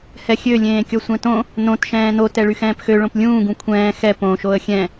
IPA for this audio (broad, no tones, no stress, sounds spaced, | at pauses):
h ɛ xʲ ø lʲ ẽː kʲ ɔ sʷ ɛ̃ t õ | n õ t ʃ ɛ̃ː n o t ɛ ɭ y x ɛ̃ː p x ø ɭ õ p lʲ ũː ɡ ũ kʷʰ ɛ̃ː x ɛ p õ ʃ o ə̯ xʲ ɛ̃